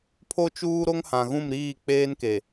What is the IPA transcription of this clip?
pʰ o˦ t͡ʃ uː˦ ɾ o˦ ŋ h ã˨ ɣ ũ˦˨ m ɾ iː˦˨ k͡p eː˦ n k e˨

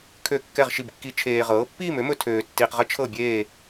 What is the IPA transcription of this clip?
kʰ ø˥˧ kː ɛ˥˧ ʁ ʃ i˥˧ b kː i˦˥ t͡ʃʰ eː˧ ʁ ɤː˨˥ pː iː˥˧ m ø˨˥ m ɵ˧ tʰ øː˧ tː iː˧ q ʁ ə˦˥ t͡ʃʰ ɤ˥˧ bʲ eː˥˧

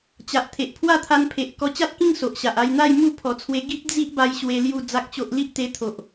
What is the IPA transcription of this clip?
t͡ɕ a˨ ʔ t̪ʰ e˨ ʔ pʰ w a˥˧ t̪ʰ a˧ n pʰ e˨ ʔ k ɔ˧ t͡ɕ a˦ t̚ k ĩ˥˧ ŋ s o˨ ʔ ɕ a˨ ʔ a˧ j n̪ a˥˧ j m u˥˧ pʰ ɔ˨˩ t͡sʰ w e˧ ɡ i˦ p̚ d͡z i˦ ʔ b a˧ j ɕ w e˧ l j u˥˧ d͡z a˦ k̚ t͡ɕ o˦ ʔ l i˦ ʔ t̪ e˧ t̪ʰ o˨ ʔ

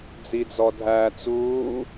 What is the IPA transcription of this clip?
d͡z i d͡z ɔ dʱ æ t͡s uː

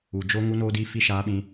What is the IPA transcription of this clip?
u˨ d͡ʒ o˦ ŋ u˦ n oː˦ d iː˦ f i˦ ʃ aː˦ ɓ ĩ˦

